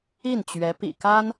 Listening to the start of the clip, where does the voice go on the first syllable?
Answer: falling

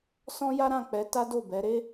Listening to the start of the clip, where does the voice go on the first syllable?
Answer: high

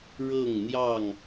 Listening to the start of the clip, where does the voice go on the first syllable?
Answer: falling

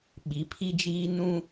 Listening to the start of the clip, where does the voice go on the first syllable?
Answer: rising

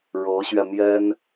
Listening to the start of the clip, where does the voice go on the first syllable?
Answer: rising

